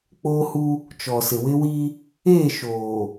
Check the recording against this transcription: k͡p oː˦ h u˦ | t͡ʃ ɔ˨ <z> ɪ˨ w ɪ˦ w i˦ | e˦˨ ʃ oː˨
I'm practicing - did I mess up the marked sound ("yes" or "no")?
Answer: yes